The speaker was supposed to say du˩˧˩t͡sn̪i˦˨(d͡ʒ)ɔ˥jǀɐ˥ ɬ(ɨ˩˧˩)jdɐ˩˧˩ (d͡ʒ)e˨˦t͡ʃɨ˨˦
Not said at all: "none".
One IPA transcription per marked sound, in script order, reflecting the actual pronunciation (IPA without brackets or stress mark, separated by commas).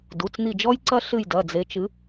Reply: d͡ʒ, ɨ˦˨, d͡z